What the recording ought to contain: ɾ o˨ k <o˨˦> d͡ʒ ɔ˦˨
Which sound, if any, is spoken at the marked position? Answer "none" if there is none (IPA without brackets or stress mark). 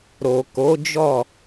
o˨˦